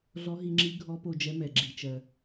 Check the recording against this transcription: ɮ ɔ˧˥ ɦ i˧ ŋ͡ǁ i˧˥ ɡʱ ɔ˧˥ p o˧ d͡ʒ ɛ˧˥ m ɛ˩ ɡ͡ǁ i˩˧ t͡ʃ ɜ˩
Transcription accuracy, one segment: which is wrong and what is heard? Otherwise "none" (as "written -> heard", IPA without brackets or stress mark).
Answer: none